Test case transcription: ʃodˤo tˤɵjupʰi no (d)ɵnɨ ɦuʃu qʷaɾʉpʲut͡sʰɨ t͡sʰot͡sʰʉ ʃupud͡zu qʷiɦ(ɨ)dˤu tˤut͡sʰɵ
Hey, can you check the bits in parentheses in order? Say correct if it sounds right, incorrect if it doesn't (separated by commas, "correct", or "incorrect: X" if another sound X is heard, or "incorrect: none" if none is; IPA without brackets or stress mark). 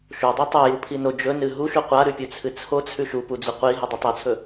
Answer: incorrect: d͡ʒ, correct